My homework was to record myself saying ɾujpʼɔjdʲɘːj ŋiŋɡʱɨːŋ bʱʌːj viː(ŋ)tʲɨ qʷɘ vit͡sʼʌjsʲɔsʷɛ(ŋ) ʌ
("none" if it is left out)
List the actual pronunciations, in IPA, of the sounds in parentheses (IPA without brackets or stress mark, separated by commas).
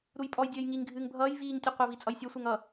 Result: ŋ, ŋ